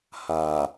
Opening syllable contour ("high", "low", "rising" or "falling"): low